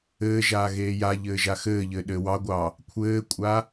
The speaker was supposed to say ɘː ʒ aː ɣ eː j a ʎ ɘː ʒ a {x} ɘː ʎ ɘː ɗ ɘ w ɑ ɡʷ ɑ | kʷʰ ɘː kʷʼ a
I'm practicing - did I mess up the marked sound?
no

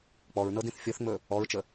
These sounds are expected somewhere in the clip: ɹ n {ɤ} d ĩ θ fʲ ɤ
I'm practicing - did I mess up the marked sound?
no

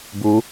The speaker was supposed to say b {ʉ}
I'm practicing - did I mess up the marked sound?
yes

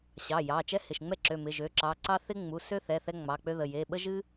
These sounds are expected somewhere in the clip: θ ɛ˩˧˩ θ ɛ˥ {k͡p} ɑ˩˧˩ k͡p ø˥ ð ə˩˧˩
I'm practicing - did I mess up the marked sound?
yes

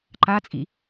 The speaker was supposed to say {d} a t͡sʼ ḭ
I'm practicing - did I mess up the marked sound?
yes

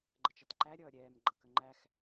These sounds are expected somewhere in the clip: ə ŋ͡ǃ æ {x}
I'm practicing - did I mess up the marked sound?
no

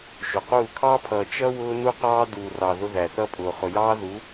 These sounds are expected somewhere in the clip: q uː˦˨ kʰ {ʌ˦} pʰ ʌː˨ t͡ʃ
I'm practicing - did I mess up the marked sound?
yes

